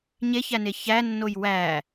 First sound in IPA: ɲ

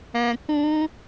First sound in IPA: ɛ̃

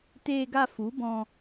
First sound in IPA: t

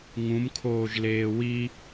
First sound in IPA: ŋ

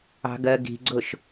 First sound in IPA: ɑ̤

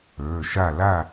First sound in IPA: ə˞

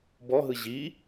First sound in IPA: b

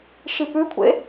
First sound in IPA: ʃ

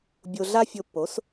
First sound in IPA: bʲ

